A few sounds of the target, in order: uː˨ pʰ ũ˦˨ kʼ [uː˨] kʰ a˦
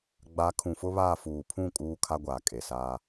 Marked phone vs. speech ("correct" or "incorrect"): incorrect